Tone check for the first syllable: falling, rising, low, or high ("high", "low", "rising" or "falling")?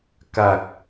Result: low